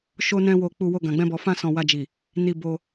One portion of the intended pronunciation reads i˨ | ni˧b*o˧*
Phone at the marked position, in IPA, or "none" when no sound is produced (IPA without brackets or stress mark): o˧